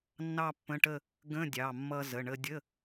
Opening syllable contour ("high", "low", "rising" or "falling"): falling